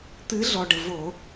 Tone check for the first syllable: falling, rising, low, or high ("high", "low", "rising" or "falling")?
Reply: rising